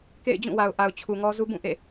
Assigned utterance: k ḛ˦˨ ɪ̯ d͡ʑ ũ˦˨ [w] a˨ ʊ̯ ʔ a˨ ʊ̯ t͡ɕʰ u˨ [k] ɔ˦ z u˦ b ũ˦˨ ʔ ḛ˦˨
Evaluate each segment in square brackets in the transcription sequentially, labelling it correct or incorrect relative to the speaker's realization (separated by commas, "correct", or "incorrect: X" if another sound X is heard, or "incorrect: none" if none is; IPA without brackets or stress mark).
correct, incorrect: ŋ